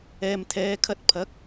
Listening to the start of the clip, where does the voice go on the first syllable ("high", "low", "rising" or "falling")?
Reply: low